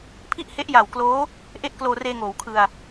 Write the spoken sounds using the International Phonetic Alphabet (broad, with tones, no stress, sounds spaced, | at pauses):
pʰ i˥˩ ʔ h e˦˥ ʔ j a˨˩ w k l oː˦˥ | ʔ e˥˩ ʔ k l oː˧ r eː˧ ŋ oː˩˦ w kʰ ɯ˧ a̯